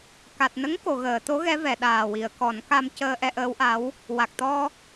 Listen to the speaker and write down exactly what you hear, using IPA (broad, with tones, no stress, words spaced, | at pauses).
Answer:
ka˨˩t̚nə˧˥ŋ ko˨˩˨ɣəː˨˩˨t̪o˧˥ ɣɛ˧˥vɛ˨˩˨ɗaː˨˩ wi˨˩˨ə̯kɔ˨˩˦nka˧m cəː˧ʔɛ˧ʔəː˧˥wʔa˧˥w | wa˨˩k̚t̪ɔ˧